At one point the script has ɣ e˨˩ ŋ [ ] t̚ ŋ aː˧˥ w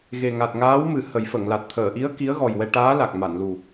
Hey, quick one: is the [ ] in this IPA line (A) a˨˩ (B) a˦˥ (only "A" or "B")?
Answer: A